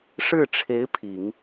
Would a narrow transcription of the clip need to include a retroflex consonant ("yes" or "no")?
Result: yes